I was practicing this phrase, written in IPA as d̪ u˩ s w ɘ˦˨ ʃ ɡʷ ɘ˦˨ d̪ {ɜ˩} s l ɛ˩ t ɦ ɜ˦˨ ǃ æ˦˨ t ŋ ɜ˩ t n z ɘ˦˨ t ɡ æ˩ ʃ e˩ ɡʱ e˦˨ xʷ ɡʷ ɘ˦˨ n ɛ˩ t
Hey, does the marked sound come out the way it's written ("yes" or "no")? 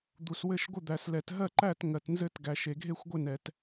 no